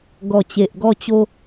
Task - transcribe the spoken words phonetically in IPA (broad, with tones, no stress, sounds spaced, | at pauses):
ɡ ɔ˨˩ t͡ɕ e˨ ʔ ɡ ɔ˧ t͡ɕ o˧